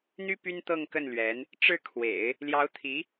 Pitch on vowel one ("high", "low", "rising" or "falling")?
high